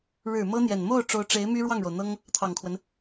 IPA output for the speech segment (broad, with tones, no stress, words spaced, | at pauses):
ɻɻ̩˨˩ mɤ˥n̪jɛ˨˩n mo˥˩ʊ̯ ʈ͡ʂo˧˥ʊ̯ʈ͡ʂe˧˥ɪ̯ my˥ɻwɑ˥˩ŋɻo˩ʊ̯n̪ɤ˥ŋ | t̪ʰɑ˨˩ŋkʰwə˦n